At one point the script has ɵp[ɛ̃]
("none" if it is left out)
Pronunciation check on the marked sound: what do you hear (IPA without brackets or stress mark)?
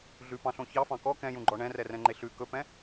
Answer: ɛ̃